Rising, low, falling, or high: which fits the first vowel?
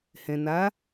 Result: low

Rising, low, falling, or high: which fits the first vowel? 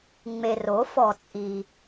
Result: low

